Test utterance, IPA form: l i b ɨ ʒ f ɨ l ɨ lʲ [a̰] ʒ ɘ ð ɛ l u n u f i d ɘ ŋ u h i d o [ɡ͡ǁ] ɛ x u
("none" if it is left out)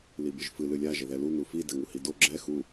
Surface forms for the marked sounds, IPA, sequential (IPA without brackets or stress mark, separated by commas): a, ɡ͡ǁ